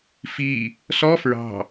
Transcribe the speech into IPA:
f i | s ɔ f ɹ ɑ̤

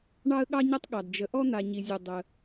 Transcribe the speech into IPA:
ɳ ɑ˥ ə̯ ɠ ɑ˥ ɲ ɐ˥ tˤ ɠ ɑ˩ d d͡ʒ ə˩ ʔ ɔ˥ n̪ a˩ ɲ i˩ zʲ ɵ˩ dˤ ə˩

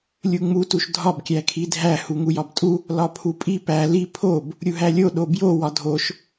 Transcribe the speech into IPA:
lʲ u ŋ͡m u t u ʃ dʱ ɒ b kʲ æ kʰ i dʱ æ h u ŋ u j ɒ b tʼ u | l ɒ pʰ u pʼ i p æ l i pʰ o b | ɾʲ u ɦ æ lʲ o ɗ o b j o w ɒ dʱ o ʃ

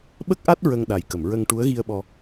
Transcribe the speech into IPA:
ɓ ə˦˥ k̚ ʔ a˦˥ t̚ ɹ ə˧ ŋ ɗ a˨˩ j k ə˨˩˨ m ɹ ə˧ ŋ ʈ u˧˥ ə̯ ɣ i˧ ə̯ ɓ ɔ˧

